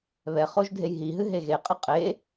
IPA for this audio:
β ɛ χ o ʒ dʱ e j ɦ i ɦ ɨ ɦ e ɣ e qʼ ɨ qʼ e

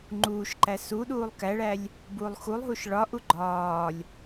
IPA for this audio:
ŋ͡ǃ uː ʃ ǃ æ s u ɗ uː lˠ k æ ɭ æ lʲ | b uː lˠ x u lˠ ɦ u ʃ ɭ ɒ ʔ u ɡ͡ǃ ɒː lʲ

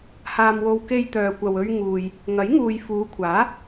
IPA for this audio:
h aː˧ m w o˧ w k e˧ j t̪ œː˨ kʷ ɐ˨ w ɵ˧ ɥ ŋ uː˨ j | ŋ ɐ˨˥ j ŋ uː˨ j f uː˨˧ kʷʰ aː˨˥

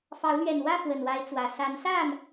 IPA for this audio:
f ɑ˨˦ ʊ̯ l ɥ ɛ˨˩ n w ä˥˨ f w ə˨˩ n w a˨˦ ɪ̯ t͡s w ä˨˩ s a˨˦ n s a˥˨ n

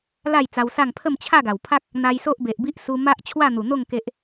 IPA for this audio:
l a˥˧ j t͡s a˧ w s a˥˧ ŋ pʰ ə˥˧ m t͡ɕʰ a˥˧ ɡ a˨˩ w pʰ a˦ k̚ | n̪ a˧ j s o˦ ʔ b e˨ ʔ b i˦ ʔ s u˧ m a˦ ʔ t͡ɕʰ w a˥˧ n̪ u˨˩ n̪ o˥˧ ŋ k e˦ ʔ

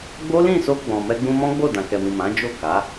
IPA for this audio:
ɡ͡b o˦ l ĩ˦˨ s o˧ ɡ͡b ɔ̃˨ m ɛ˧ ɡ͡b ũ˧ m ɔ̃˦ ɡ͡b o˦˨ d ã˨ k ɛ˨ m ĩ˨ m ã˨˦ d͡ʒ o˦˨ k a˨˦

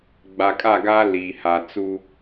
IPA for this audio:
ɡ͡b a˨ kʼ a˦˨ ɡ aː˦ l iː˨ h a˨ t͡s u˦

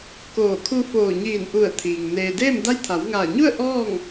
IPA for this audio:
k oː˧˩ kʰ u˧ f oː˧˩ ɲ iː˧˩ n ʔ u˧˩ ə̯ t̪ʰ iː˩ ŋ n eː˩ d eː˥˨ m d a˧˥ j t̪ʰ a˩˧ w ŋ aː˧˩ ɲ u˥˨ ə̯ ʔ ɔː˥˨ ŋ

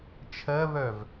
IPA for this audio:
t͡ʃʰ ɜ β œ v

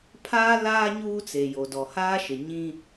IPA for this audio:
pʰ aː˦ l aː˦ ɲ uː˦ t͡s e˨ j o˨ d ɔ˨ h aː˦ ʃ ɪ˨ ɲ ĩ˦

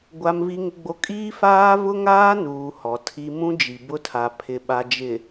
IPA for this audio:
ɡʷ a˦ m v i˦ ŋ ɪ˦ ɡ͡b o˦ kʼ iː˦ f aː˦ v ʊ˦ ŋ aː˦ n uː˨ h ɔ˨ tʰ i˦ m ũ˦ d͡ʒ i˨ b ʊ˦ tʰ a˨ pʰ ɪ˨ ɓ a˨ d͡ʒ ɪ˨

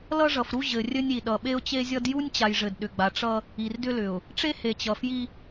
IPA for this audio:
l ʌ˦ ʐ ʌ˨ f ɾ u˦ ʑ ɘ˨ rʲ ɘ˦ nʲ i˨ ɗ ʌ˨ ɓ e˦ ʊ̯ t͡ɕ e˦ zʲ ʌ˦ d j u˦ nʲ t͡ɕ a˨ j ʐ ɘ˨ d ɗ ʏ˨ ɡ͡b a˨ ʈ͡ʂ ʌ˦ | i˨ r d ʏ˦ l ʏ˨ ʊ̯ | ʈ͡ʂ e˦ h e˨ t͡ɕ ʌ˨ f j i˦

